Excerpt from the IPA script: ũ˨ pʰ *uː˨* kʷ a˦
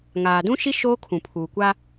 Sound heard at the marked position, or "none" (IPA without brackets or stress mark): uː˨